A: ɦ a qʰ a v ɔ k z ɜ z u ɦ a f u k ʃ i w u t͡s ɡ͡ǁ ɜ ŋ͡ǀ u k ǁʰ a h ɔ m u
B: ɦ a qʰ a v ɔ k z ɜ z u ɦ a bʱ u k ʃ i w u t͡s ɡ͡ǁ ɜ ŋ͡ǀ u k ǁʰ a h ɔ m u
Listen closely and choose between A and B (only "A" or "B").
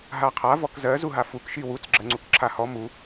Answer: A